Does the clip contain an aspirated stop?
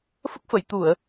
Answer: no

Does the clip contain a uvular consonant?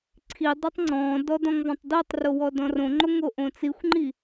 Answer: no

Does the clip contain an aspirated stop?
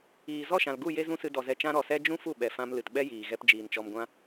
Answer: no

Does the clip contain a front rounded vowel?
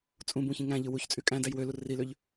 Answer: yes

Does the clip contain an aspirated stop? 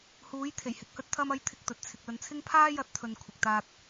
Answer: yes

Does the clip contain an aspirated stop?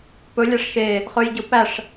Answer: no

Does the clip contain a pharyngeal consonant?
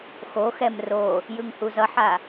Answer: yes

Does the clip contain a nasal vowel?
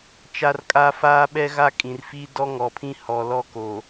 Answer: yes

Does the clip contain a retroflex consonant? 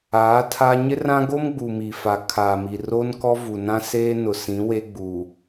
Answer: no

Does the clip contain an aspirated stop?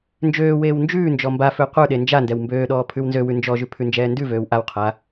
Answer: yes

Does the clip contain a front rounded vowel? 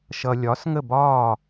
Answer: no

